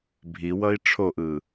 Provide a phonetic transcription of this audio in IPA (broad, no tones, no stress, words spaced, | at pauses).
bʱiwʌi̯ ʈ͡ʂʰoʔɯ